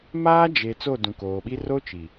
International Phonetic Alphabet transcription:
m aː˦ d͡ʒ e˨ t͡s o˦˨ d ũ˨ k oː˨ ɓ i˦ r o˦ t͡ʃ i˨

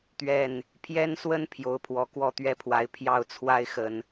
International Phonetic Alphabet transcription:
t̪ ɥ ɛ˥˨ n | pʰ j ɛ˦ n s w ə˦ n pʰ j o˨˦ ʊ̯ pʰ w ɔ˨˩ k w ɔ˥˨ t̪ ɥ ɛ˥˨ pʰ w a˨˦ ɪ̯ pʰ j ɑ˥˨ ʊ̯ t͡sʰ w a˦ ɪ̯ x ə˨˩ n

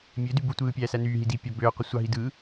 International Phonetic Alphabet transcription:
mʲ ø d y b u tʷ ɯː pʲ æː s æ n yː ɦ i d i pʲ ɑ b øː qʷ ɯ sʷ ɑ ɦ i d ɯː

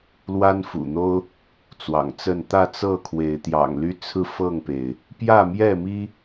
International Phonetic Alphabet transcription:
l w a˦ n f ṵ˨˩ n̪ o˦ ʊ̯ | t͡s w ɑ̰˨˩ ŋ t͡s ə˥˨ n t̪ ä˥˨ t͡s ɤ˥˨ kʰ w e˨˦ ɪ̯ t̪ j ɑ̰˨˩ ŋ l y˦ t͡sʰ ɹ̩˥˨ f ɤ˥˨ ŋ p e˩ ɪ̯ | p j ä˥˨ m j ɛ˥˨ m i˦

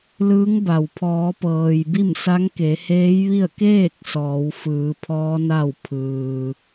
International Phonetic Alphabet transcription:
l ɯː˧˥ ŋ b a˩ w pʰ ɔː˩˧ p ɤː˩ j b i˥˨ m s a˧˥ ŋ k e˩˧ h eː˧˥ j ʋ i˥˨ ə̯ k eː˥˨ k̚ s ɔː˩˧ w f ɯː˩˧ pʰ ɔː˧˥ n a˥˨ w pʰ ɯː˩

